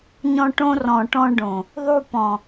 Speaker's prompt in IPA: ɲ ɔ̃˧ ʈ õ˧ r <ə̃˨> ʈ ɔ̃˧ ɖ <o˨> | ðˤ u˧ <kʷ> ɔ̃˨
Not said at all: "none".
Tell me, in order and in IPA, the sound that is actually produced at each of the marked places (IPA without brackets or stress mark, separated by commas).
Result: ɔ̃˨, õ˨, p